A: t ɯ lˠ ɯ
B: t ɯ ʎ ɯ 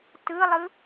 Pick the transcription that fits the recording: A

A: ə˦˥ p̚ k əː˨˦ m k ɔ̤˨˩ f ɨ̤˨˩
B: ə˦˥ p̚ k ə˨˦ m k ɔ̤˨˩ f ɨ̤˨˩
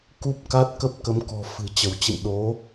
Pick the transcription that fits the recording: B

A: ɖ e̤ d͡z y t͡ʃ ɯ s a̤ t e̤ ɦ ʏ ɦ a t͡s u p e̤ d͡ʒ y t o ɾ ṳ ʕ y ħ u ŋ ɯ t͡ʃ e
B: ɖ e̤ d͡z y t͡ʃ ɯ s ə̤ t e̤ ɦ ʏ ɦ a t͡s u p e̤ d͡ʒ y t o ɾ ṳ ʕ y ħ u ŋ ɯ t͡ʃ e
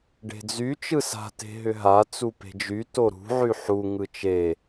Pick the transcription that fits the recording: A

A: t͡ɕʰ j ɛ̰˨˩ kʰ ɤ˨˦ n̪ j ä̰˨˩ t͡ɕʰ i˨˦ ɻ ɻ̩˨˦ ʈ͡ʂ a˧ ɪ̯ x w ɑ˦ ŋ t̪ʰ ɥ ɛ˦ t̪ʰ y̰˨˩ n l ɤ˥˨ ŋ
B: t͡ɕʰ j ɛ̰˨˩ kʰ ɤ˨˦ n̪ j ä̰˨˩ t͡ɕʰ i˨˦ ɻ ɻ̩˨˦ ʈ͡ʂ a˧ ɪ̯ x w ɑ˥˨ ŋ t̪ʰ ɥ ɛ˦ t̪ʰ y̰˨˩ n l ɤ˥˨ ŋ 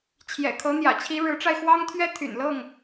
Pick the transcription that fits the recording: A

